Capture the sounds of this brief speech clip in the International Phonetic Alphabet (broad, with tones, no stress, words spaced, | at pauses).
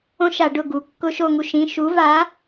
õ˦ʃa˧˩˧ ɖʊ˦˨ɡu˩˧ kːʊ˦ʃo˦˨ŋu˦ ʃĩ˩˧˩ʃu˨˥va˨˥